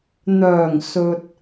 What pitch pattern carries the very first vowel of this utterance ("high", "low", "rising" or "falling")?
low